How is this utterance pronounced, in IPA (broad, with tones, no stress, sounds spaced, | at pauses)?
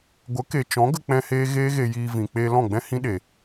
ɡʷ ə˨˦ k e˨ t͡ʃ ɔ̃˨˦ ɡ ə˧ k͡p ɛ̃˦ h eː˦ ɣ eː˦ ɣ e˧ j iː˧ v ĩ˨ k͡p eː˧ l ɔ̃˦˨ ɡ͡b ɛ̃˦ h ĩ˦ ɗ e˨